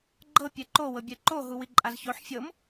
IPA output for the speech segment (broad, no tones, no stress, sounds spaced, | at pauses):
ɡ͡ǃ ɤ pʲ ɛ ǃ o w ɤ bʲ ɛ ǃ o ɦ u w i ǃʼ a z ç o ħ fʲ ɤ m